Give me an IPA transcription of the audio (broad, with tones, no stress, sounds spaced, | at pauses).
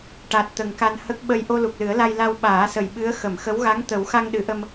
ʈ a˨˩ t̚ t̪ ə˨˩ ŋ k a˧ n h ə˦˥ k̚ ɓ ə˧ j ʔ o˧ l u˨˩ k̚ l ɨ˨˩˦ ə̯ l a˧ j l a˧ w ɓ aː˨˩˦ s ə˨˩ j ɓ ɨ˧˥ ə̯ x ə˨˩˨ m x ə˧˥ w ɣ a˧˥ ŋ t̪ ə˨˩˦ w x a˧ ŋ ɗ ɨ˨˩˦ ʔ ə˧ m